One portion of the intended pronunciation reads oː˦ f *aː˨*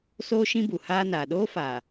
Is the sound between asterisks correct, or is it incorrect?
correct